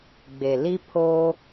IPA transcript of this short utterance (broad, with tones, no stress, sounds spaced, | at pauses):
ɡ͡b e˨ l i˦ pʰ o˦